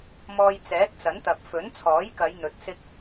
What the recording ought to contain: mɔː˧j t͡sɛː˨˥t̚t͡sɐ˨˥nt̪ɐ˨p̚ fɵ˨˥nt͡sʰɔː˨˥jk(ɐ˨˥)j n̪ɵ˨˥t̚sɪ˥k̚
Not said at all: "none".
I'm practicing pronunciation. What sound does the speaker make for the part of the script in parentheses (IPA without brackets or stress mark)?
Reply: ɐ˨˧